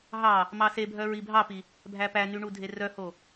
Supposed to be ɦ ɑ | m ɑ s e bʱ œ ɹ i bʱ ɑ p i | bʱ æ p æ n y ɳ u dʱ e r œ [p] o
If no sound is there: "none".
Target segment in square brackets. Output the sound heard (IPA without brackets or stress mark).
h